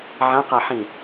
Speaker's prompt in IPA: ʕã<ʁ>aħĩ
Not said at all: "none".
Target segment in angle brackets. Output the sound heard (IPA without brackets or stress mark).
q